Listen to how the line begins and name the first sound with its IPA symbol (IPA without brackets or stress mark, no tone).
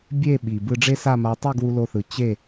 bʲ